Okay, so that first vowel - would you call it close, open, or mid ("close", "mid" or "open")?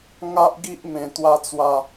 open